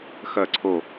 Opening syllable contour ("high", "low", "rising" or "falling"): falling